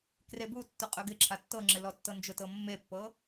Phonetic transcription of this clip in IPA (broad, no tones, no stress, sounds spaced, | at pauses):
k r e b u tː ʊ qʼ ɵ ɡ ɪ ǁʰ a tː ɤ ŋ͡ǁ ɪ l ɔ tː ɤ n d͡ʒ ʊ t ɤ mː e pː ɤ